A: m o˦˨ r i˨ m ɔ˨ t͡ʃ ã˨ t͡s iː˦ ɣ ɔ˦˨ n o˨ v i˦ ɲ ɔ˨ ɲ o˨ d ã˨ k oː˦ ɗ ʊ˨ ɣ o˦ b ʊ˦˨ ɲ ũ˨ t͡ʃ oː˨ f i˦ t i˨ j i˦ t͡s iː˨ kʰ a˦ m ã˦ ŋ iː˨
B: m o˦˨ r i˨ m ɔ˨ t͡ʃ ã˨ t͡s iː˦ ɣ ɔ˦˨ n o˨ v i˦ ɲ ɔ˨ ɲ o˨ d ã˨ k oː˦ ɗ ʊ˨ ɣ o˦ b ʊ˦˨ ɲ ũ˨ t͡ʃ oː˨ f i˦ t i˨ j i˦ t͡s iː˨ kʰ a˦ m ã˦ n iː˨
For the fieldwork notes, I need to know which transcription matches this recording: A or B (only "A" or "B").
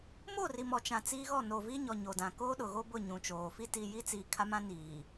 B